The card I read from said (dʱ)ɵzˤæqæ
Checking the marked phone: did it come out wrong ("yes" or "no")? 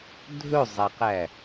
no